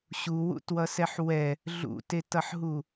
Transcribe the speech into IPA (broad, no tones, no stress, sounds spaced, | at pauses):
ɕ u w ṵ t w ʌ s ɛ ħ w ɛ | ɮ ṵ t e t ʌ ħ ɦ u